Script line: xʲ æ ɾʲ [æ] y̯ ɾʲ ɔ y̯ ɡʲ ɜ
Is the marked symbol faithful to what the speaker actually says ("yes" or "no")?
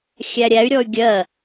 yes